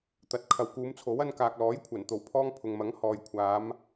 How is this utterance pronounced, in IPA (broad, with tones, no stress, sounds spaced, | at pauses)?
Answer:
t̪ ɐ˨ t̚ kʰ ɐ˨ w k uː˨˧ m t͡sʰ o˨˥ w ɐ˧ n k aː˨ k̚ l ɔː˨˥ j kʷʰ ɐ˨˩ n t̪ o˨˩ w pʰ ɔː˧ ŋ pʰ ʊ˨ ŋ m ɐ˨˥ ŋ h ɔː˨ j kʷʰ aː˨˧ m